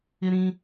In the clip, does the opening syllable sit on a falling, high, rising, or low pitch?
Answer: high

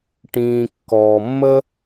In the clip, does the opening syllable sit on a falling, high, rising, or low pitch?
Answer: low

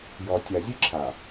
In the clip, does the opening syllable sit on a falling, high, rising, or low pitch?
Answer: low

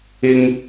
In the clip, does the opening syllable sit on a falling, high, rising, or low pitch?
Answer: high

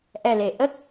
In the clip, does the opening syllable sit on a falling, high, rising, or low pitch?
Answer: low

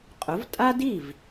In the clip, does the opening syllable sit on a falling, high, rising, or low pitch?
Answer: rising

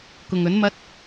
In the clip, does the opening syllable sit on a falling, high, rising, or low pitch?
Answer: low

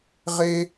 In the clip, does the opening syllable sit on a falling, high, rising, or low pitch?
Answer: high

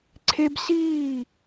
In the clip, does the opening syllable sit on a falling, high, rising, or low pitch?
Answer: high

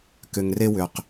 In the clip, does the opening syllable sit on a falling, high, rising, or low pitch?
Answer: low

